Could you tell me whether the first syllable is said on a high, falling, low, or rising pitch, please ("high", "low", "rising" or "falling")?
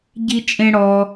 high